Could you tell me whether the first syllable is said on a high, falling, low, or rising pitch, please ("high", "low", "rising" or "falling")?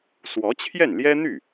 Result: rising